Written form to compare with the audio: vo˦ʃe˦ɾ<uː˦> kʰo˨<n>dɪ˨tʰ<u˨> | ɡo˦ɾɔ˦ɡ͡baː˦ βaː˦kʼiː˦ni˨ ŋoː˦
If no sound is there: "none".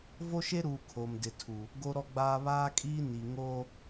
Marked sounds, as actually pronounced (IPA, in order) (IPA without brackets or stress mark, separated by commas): uː˨, m, u˨